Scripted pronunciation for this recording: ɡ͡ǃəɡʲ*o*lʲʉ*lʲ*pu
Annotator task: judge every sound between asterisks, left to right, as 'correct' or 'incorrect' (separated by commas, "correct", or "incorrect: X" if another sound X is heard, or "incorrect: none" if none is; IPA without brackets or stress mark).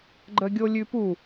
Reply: correct, incorrect: none